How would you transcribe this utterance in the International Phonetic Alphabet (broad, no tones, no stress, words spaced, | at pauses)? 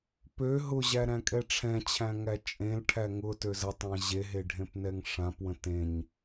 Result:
pø ɦʊʑæ ɾæ̃kʼɛʈ͡ʂʰɛ̃t͡ɕʰæ̃ ŋæt͡ʃʼẽlʈʰæ ŋʊtøz ətˤã ʑeɦe ɖʱẽpnɛŋʂãpwə̃ tẽɲ